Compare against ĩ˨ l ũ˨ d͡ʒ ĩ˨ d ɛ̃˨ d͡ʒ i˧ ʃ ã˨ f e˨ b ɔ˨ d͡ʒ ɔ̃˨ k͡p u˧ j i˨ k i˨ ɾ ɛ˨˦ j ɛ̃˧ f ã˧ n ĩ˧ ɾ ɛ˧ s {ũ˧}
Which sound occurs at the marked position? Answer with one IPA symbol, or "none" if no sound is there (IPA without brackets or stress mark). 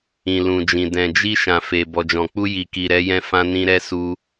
u˧